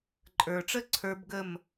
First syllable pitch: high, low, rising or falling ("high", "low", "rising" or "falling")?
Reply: low